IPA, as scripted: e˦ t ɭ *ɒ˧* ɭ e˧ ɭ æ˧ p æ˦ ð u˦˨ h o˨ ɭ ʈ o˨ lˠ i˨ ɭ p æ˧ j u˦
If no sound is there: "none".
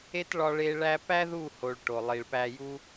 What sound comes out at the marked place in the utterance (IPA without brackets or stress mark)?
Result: ɒ˧